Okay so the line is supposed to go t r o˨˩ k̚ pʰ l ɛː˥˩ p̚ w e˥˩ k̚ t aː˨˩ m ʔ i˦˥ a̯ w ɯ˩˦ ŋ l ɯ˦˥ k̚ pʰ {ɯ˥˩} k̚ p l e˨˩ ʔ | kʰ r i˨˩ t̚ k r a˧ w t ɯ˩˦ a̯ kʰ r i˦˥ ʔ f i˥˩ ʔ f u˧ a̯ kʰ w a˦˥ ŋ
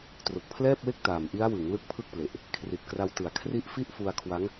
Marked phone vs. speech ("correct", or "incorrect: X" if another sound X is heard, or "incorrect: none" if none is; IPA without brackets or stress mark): correct